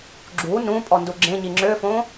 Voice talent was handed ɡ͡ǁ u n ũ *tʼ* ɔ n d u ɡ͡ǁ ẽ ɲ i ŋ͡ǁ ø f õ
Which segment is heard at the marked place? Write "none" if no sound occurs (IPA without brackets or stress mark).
pʼ